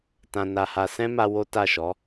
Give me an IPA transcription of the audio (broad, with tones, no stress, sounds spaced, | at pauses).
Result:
t ã˧ n a˧ h a˧ s ɛ̃˦ m a˧ w o˦ t a˦˨ ʃ ɔ˨˦